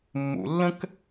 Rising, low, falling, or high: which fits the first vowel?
low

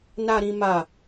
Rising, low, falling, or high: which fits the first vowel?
low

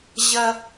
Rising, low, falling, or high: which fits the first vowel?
high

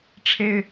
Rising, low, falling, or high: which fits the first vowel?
high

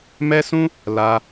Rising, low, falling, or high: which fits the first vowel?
high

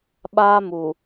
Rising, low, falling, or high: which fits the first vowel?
high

